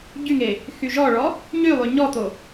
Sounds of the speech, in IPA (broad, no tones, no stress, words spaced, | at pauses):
ɟyŋe | xyʒɔɭɔ | ɲylˠy ɲɔt̪o